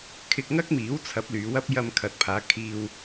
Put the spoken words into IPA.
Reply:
kʰ ɪ˧ k̚ ŋ ɐ˥ k̚ m iː˨˥ w t͡sʰ ɐ˨˥ p̚ l yː˨˧ w ɐ˥ p̚ j ɐ˧ m kʰ ɐ˨ t̚ pʰ aː˨˧ kʰ iː˧ w

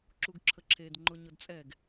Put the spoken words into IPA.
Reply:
ǁ u ɡ ǁʰ ə ǁʰ e d ŋ͡ǃ ʊ ɲ ʊ d t͡sʼ ɛ ɡ

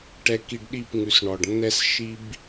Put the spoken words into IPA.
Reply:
ʈ ɛ˨ k i˨ ɖ ɗ i˦˨ p ŋ ʉ˨ s ɳ ɔ˨ ɖ nː ɛ˦ s ʃ i˦ b

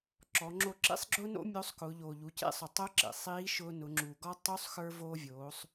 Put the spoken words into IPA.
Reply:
ǁ ɔ˩˧ ŋ͡ǁ o˧ ǁ ḭ˥ sˤ ɡ͡ǁ ʊː˥ n o̰˥ mʲ o˧˥ sˤ k ʊː˩˧ ʎ oː˩ ʎ u˩˧ c ḛ˥ sˤ ʊ˩ tˤ ʊː˧˥ ǁ ḛ˩ sˤ iː˧˥ ʃ ʊː˧ n ʊ˩˧ ŋ͡ǁ u˩ ɡ ɔ˥ tˤ u˧˥ sˤ x ə˞˧ v oː˧ vʲ oː˩˧ sˤ

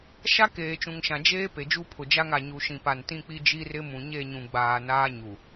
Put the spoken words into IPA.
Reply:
ʃ a˦ k eː˨ t͡ʃ ũ˨ ŋ ʃ ã˨ d͡ʒ eː˦ p e˨ d͡ʒ u˦ pʰ ʊ˨ d͡ʒ a˦ ŋ a˨ ɲ u˨ ʃ ĩ˨ p a˨ n t ĩ˦ k͡p i˦ d͡ʒ i˦ r ɪ˦ m ũ˨ ɲ e˦˨ ɲ ũ˨ ɡ͡b aː˨ n aː˦ ɲ u˨

